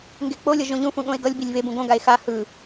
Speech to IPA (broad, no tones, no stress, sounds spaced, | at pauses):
ŋ ɡ e k͡p o lʲ ʌ ʒ õ ʎ ũ f ũ ɠ õ e̯ ɡ ʌ lʲ b i lʲ v e b ũ ɡ õ ɡ a e̯ x a h ɯ